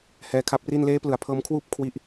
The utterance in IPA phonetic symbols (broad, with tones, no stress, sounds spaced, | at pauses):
h ɛː˧ kʰ a˦˥ p̚ r i˥˩ n l eː˦˥ p l ɯ˩˦ a̯ pʰ ɤː˧ m kʰ w uː˥˩ p̚ kʰ w i˥˩ ʔ